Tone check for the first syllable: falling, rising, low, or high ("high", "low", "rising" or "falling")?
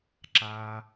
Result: low